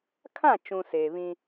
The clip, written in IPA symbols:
kʰã˦˨t͡ʃũ˨ seː˨βĩ˦

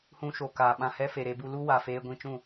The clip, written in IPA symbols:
hũ˧ʃo˨ kaː˨ɓã˧hɛ˦fe˨ ɾe˧bu˧ lu˦wa˨feː˧ ɡʷĩ˧t͡ʃũ˦˨

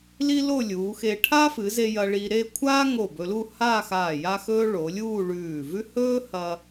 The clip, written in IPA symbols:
li˥lo˥˧lʲuː˩˧xe˧ ʈʰa˥fɨ˩˧ze˧ jɐ˧ɭi˧ɾe˥˧ kʷʰaː˥ŋo˧˩ bɵ˧lu˥˧haː˥˧xaː˧˩ ja˥xɵː˥ ɭo˩˧lʲuː˥˧ ɭʉː˧˩vʉ˥ hɵː˥hɐ˧

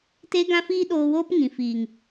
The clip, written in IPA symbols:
te˦ɡã˦fiː˦ ɗoː˧woː˦p ŋĩ˨fiː˨ŋ

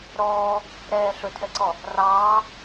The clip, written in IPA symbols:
ɾɔː | ɾɛː ɬɵtʰɛǀɔ | rɑː

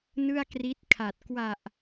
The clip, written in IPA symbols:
nɯ˥˩a̯kri˦˥t̚kʰa˨˩t̚ kwa˨˩ʔ

